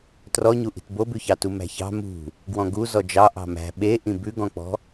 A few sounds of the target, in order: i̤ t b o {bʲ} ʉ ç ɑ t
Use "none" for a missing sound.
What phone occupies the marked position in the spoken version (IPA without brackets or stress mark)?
b